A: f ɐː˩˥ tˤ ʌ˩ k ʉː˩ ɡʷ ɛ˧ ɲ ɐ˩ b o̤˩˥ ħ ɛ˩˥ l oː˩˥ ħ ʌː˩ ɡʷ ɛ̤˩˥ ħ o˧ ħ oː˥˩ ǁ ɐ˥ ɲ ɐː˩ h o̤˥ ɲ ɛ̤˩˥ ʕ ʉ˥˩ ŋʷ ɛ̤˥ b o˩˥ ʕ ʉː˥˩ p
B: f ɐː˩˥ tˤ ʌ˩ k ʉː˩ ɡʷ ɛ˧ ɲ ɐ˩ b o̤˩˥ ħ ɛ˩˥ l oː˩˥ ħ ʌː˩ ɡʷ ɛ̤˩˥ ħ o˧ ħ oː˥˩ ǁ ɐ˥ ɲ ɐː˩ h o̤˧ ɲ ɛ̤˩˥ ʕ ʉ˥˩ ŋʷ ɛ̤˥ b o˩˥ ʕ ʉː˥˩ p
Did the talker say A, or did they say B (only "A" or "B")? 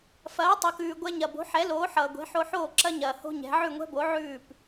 A